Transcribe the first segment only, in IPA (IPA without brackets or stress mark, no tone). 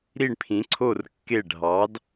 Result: ɾ